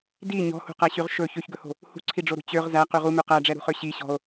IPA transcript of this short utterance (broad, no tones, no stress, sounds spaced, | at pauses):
d i ɲ ɔ̤ h ṳ q æ ɕ y ʁ ʃ ɵ ç ø ç ɡ ɵ h o̤ | h ṳ ǀʰ i ɖ͡ʐ o ɾ ṳ t͡ɕ ø ʁ z æ q y ʁ u m ʉ q æ ɖ͡ʐ ɛ ɾ ṳ χ ø ɕ i ɕ ɔ̤ o̯